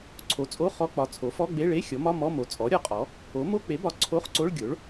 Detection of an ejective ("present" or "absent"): present